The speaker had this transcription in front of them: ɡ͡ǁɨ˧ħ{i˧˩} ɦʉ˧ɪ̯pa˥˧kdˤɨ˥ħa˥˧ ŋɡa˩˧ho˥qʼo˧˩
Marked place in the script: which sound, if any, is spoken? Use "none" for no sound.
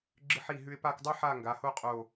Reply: i˧˩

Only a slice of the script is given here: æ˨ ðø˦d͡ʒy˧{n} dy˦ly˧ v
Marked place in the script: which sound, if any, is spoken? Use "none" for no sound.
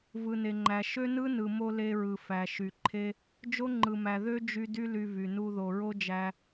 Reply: none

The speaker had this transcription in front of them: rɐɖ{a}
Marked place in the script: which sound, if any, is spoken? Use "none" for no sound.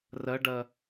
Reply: ɐ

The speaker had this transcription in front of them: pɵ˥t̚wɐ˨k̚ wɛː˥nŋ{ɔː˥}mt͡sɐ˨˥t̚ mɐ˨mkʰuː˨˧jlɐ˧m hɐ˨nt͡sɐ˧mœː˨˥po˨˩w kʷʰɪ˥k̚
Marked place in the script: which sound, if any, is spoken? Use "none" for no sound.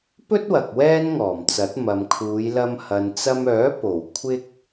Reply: ɔː˨˩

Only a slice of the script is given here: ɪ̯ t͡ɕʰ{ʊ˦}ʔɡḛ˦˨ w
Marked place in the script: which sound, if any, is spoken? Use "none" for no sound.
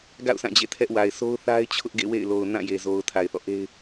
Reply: ʊ˦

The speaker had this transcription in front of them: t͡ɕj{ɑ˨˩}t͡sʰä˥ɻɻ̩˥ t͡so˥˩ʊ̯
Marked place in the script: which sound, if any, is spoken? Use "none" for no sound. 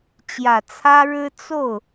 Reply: ä˨˩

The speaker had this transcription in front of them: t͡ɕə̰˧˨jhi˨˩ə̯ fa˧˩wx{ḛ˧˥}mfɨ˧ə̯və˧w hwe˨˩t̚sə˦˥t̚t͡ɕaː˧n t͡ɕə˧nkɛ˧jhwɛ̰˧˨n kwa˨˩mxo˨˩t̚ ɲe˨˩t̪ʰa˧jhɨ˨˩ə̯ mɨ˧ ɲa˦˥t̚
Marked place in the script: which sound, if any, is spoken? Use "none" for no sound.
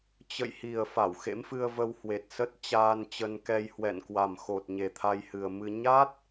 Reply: ḛ˧˥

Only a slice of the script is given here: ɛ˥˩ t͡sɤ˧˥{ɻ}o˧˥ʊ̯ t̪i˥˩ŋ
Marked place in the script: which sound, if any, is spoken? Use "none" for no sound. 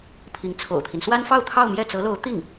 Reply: l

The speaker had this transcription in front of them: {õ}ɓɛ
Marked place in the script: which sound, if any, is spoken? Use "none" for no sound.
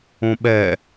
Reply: õ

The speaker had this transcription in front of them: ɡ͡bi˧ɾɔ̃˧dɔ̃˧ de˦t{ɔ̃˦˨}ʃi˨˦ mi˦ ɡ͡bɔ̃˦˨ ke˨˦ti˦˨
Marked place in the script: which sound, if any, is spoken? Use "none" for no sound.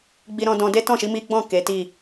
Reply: ɔ̃˦˨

